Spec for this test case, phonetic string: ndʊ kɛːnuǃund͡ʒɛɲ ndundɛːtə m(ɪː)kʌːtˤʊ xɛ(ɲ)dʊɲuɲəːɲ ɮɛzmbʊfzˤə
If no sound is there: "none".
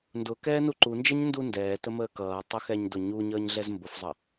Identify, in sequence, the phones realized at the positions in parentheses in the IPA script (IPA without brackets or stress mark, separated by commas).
əː, ɲ